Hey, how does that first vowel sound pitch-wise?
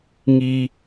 low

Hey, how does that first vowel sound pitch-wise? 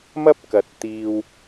high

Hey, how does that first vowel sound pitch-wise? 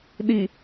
low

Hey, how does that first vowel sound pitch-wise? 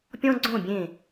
high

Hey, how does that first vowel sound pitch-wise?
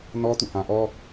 high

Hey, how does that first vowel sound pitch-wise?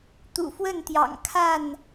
low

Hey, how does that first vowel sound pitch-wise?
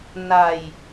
low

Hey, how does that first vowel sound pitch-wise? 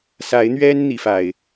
rising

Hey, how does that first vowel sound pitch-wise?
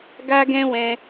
high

